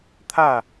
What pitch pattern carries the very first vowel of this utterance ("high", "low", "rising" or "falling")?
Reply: falling